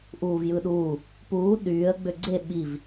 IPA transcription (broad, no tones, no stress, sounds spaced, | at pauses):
ʔ uː v j ɯ ɗ uː | p uː ɗ yː ə̯ ɡ͡b ø ɡ͡ǀ e ɓ i v